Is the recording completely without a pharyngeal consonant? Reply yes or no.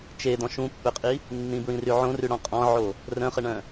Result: no